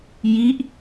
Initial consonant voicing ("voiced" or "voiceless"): voiced